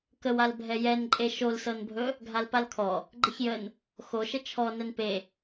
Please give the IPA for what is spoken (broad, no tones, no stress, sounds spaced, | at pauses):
k ə w a l bʱ ɛ j ɛ n ǃʼ e ʃ o l s ɤ n bʱ ɵ | ɡʱ a l p a l kʰ ɔ | ɡ͡ǃ ə ç j ə n | x o ʃ ə t͡ʃʰ ɔ n ɛ n p e